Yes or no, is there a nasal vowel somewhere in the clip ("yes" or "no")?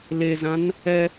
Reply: yes